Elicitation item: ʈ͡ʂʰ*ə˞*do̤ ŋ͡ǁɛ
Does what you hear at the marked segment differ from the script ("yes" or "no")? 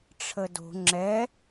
yes